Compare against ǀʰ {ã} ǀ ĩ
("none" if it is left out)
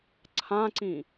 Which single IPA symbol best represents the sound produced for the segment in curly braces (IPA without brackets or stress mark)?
ã